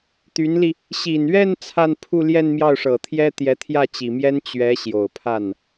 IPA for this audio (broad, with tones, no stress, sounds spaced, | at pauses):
t̪ y˧˥ n l i˧ | ɕ i˨˩ n ɥ ɛ˥˧ n t͡sʰ a˥˧ n pʰ u˥˧ l j ɛ˥˧ n m j ɑ˥˩ ʊ̯ ʂ ɤ˨˩ t̪ʰ j ɛ˥ t̪ j ɛ˧˥ t̪ʰ j ä˥˩ t͡ɕ i˨˩ m j ɛ˥ n t͡ɕ ɥ ɛ˧˥ ɕ j o˨˩ ʊ̯ pʰ a˥˩ n